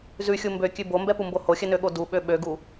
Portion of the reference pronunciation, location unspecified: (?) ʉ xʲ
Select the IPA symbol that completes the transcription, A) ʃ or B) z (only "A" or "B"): B